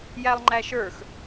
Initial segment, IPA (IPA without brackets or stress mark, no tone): j